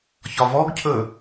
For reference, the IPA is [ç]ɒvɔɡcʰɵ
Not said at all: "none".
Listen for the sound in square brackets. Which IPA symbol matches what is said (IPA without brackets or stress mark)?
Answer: ç